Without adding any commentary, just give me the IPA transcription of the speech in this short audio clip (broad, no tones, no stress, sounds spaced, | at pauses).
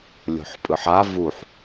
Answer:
lʲ o̤ ħ pʼ ɯ ħ a v u ħ